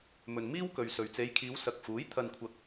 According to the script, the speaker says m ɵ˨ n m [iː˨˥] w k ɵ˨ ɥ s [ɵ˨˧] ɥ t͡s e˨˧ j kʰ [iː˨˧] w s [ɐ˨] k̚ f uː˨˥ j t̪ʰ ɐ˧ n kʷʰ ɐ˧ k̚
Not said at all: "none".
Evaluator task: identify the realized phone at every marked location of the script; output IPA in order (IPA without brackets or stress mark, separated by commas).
iː˥, ɵ˨, iː˨˧, ɐ˨